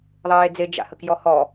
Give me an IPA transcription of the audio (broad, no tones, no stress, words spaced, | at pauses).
ðˤeːd͡ze d͡ʒa̰həkjɔhɔ